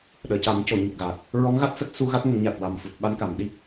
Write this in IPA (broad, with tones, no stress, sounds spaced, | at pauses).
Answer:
ɗ əː˨˩˨ c a˨˩˦ m c o˨˩˨ ɲ ə˨˩ k̚ ɣ a˨˩ k̚ | ɹ ɔ˧˥ ŋ ɣ a˦˥ t̚ s ə˦˥ k̚ s u˧ ɣ a˦˥ t̚ ŋ ə˨˩˦ ŋ ɲ a˨˩ t̚ w a˨˩ m f u˨˩ t̚ ɓ a˧ n k a˨˩˨ m ɗ i˦˥ k̚